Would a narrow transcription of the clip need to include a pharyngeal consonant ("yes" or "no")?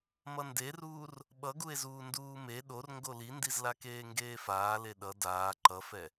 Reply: no